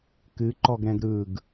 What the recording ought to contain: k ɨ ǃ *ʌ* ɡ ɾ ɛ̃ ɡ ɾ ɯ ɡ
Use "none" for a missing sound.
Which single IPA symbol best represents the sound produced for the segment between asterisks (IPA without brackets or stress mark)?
ɔ